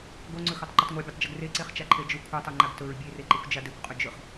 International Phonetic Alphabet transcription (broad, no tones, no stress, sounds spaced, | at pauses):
ɡ o ŋ͡ǀ ɵ x o tˤ ǃ ɵ tˤ ŋʷ a bʲ a tˤ d͡ʒ ɵ ɡ r e ǀ e χ t͡ʃ a ǃʰ e d͡ʒ ɵ kʷʰ a tˤ o ŋ͡ǃ a ɡ t ɵ ɹ bʲ e r e ǃ e kʷ d͡ʒ a d e kʷ qʼ ɵ d͡ʒ ɵ χ